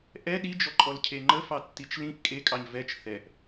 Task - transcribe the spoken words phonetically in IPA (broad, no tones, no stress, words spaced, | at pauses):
ʔɛ ɗid͡ʒɔǃʼɔlcʰe ŋ͡ǃəfɑtːit͡ʃ lĩʔ kʼekʼɑɲ vɛt͡ʃ θɛʔ